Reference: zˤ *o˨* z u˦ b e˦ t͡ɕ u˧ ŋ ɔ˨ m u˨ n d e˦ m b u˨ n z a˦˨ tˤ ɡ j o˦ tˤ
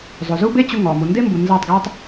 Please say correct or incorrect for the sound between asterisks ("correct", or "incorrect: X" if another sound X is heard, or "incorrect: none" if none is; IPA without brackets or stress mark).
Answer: correct